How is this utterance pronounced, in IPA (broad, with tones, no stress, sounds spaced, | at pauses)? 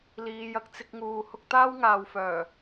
l iː˨˧ j ɐ˨˥ k̚ t͡s ɪ˧ k̚ ŋ uː˨ h ʊ˧ k̚ t̪ aː˥ w ŋ aː˨ w f œː˨˩